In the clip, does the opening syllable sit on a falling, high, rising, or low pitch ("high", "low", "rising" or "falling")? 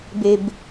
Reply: low